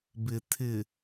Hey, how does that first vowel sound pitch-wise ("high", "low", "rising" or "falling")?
low